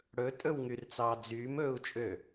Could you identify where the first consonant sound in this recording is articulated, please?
retroflex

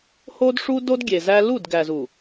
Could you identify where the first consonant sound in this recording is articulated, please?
glottal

